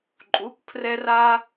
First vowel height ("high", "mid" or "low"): high